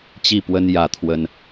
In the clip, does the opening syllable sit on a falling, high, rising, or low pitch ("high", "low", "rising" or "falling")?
falling